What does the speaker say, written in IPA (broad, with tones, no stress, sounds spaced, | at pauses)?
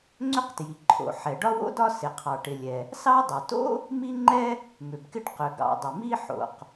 ŋ͡ǀ ʏ˥ q t j i˩ ǃʰ o̰˩ ħ ɛ˩ ɖ ɒ˥ w o̰˥ d ɒ˥ s ɪ˩ qʰ ɑ˩ ʈ ɪ˩ lʲ ɛ˩ | s ɑ˥ dˤ ʏ˩ t o̰˥ | m i˥ ŋ͡ǃ ɛ˥ | m ʏ˩ b k ɪ˥ ɖ q ʏ˩ ɡ ɑ̰˩ dˤ ɪ˩ m i˥ ħ o̰˩ q